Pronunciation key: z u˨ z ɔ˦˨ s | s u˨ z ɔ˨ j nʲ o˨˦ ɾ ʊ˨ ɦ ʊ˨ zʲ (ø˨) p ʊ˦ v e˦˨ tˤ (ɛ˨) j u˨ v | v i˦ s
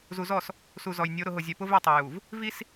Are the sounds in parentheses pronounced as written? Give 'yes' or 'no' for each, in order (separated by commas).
no, no